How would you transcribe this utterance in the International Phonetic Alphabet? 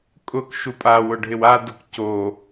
kʼ ʊ k ʃ u pʼ a w ʊ ɖʱ ɪ w a d ʊ k c o

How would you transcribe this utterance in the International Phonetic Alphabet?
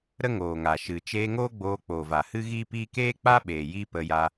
ɾ ə˦ ŋ oː˨ ŋ a˨ ʃ ɨ˨ t͡ʃ eː˧ ŋ oː˦ ɡ͡b oː˧ k͡p oː˨ v a˨ h ɨ˦ ɣ iː˦ p iː˦ k eː˦ k͡p a˦ ɓ eː˨ j i˦ p ə˧ j a˧

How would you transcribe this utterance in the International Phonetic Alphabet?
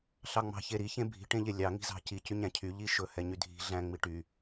ɬ ɑ ŋ͡m ɑ̤ ç e ɾ i ç ẽ bʱ i̤ ʈ ẽ ʎ e lʲ ɑ ŋ i̤ z ɑ̤ c i c y ɲ æ̃ cʰ y ʎ i ʃ ɵ h ɛ ɲ y dʱ i̤ ɮ æ̃ ŋ͡m i ʈ y

